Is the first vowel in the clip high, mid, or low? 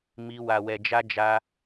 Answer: high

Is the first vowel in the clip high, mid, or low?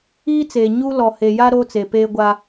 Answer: high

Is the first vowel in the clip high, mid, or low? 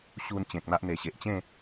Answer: high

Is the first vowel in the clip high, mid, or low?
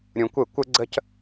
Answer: high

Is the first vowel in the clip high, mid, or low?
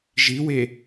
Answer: high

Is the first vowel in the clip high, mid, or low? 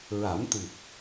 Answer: low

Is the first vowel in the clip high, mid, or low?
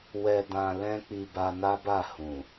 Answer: mid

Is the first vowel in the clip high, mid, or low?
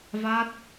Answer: low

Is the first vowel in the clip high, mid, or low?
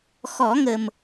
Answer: mid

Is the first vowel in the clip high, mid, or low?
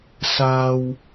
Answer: low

